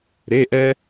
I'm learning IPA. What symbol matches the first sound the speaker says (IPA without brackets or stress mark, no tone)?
ɾ